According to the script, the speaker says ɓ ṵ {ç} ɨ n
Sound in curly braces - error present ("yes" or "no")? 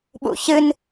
no